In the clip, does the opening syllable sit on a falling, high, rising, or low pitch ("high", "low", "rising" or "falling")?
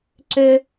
high